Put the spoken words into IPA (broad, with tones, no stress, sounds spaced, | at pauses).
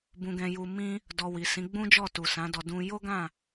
b ũ˨ ɡ ɛ̃˨ j u˨ m ĩ˧ | d ɔ˨ w i˨ s ĩ˨˦ ɡ͡b ũ˦ d͡ʒ ɔ˦˨ t u˨ s ã˨˦ d ɔ˧ d ũ˧ j o˦ ɡ ã˦˨